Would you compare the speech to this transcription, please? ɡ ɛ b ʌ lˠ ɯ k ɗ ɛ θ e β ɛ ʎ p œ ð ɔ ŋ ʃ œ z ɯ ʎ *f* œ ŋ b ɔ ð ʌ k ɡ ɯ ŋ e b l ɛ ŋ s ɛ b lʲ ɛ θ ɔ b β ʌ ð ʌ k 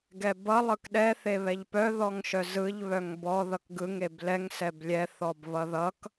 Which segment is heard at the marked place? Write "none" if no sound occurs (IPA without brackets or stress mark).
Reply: β